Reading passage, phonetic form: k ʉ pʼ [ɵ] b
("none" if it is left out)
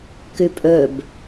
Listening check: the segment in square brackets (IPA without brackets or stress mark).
ɵ